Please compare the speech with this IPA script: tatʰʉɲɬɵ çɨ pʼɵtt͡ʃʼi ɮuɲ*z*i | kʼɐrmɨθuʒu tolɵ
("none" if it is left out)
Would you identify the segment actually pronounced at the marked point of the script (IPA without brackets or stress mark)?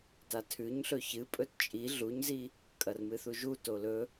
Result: z